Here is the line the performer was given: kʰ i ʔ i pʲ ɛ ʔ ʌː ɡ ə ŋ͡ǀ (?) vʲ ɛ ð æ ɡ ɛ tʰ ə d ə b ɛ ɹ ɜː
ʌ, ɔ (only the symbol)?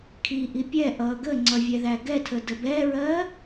ʌ